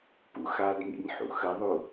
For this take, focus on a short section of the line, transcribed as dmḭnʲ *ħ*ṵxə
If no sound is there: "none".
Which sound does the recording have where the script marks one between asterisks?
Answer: ħ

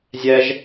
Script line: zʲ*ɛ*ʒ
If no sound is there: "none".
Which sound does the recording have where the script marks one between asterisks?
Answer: ɛ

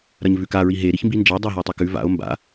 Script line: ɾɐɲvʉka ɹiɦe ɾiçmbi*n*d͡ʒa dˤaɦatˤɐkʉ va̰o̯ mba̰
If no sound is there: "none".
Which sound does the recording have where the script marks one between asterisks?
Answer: n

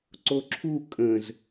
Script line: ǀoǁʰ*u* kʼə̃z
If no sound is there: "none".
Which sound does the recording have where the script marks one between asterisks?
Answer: u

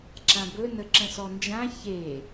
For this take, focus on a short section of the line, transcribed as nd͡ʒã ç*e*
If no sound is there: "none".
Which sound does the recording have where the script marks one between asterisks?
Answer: e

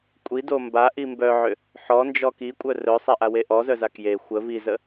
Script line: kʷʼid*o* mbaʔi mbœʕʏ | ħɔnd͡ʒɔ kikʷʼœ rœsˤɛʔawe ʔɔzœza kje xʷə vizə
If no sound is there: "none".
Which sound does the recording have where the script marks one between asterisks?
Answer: o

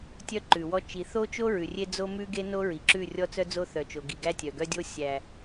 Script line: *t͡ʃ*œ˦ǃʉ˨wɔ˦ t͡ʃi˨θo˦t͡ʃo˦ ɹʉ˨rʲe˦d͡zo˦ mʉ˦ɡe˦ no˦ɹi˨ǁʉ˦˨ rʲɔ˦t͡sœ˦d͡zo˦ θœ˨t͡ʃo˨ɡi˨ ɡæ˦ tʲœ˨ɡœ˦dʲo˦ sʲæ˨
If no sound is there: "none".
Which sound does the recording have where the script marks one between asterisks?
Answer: tʲ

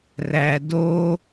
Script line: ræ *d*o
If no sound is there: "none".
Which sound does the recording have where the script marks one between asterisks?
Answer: d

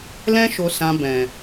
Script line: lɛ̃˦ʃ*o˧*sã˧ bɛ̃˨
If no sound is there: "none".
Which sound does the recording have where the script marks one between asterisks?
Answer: o˧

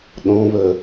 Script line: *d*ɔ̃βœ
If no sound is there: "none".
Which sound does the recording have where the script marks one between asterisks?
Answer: ɗ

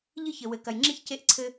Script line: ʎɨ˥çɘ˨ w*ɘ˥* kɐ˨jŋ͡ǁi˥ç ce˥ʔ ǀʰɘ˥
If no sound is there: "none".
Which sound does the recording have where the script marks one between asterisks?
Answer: ɘ˨˦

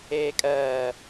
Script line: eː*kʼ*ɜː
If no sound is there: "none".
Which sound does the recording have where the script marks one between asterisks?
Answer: kʼ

